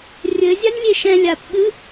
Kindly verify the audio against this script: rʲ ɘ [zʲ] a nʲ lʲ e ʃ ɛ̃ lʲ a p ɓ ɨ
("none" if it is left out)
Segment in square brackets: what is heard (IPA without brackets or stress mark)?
zʲ